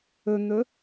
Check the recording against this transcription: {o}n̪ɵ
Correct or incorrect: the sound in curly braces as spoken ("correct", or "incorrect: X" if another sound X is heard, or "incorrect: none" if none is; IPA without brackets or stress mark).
incorrect: ɵ